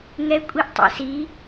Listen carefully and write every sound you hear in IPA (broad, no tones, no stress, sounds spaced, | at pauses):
ŋ ɛ kʷʼ i ʔ tˤ ɛ̰ s i